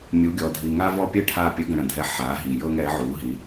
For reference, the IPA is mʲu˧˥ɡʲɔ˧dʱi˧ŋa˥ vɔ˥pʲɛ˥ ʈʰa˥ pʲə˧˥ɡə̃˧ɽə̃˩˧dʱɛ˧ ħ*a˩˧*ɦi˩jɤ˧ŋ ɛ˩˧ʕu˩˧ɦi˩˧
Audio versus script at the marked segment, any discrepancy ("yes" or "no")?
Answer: no